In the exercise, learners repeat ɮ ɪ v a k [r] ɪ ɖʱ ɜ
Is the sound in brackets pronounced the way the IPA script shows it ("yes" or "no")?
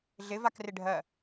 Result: yes